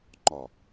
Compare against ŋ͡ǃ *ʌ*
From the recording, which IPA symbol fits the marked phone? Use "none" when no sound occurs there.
ɒ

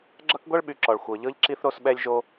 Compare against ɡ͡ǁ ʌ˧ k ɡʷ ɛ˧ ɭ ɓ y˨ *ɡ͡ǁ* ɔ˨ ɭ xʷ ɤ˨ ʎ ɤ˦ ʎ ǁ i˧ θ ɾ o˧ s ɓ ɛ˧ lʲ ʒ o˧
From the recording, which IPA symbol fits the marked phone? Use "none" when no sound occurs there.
ǁ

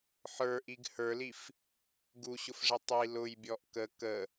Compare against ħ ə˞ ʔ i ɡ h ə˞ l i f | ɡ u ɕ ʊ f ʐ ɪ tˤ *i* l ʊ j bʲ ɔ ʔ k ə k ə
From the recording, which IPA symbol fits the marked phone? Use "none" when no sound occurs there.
i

